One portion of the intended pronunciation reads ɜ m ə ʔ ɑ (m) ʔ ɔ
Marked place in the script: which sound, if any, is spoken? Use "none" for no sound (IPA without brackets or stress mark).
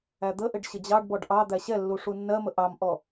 m